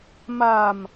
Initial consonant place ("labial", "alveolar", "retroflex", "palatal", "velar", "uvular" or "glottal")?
labial